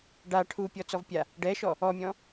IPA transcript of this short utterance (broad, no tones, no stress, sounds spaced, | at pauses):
ɖ a ʈʰ u pʲ ɔ t͡s ɔ v pʲ a | ɖ ɛ ʃ ɔ | ɔ mʲ ɔ̃